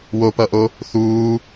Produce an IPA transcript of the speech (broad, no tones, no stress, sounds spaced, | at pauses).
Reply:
w o p ʌ ʔ o | θ uː